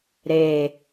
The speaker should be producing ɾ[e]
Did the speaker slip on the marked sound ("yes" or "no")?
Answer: no